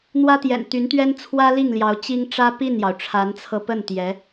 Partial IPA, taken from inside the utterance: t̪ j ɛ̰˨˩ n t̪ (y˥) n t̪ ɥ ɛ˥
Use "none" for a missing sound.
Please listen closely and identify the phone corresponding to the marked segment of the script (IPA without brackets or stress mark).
y˧˥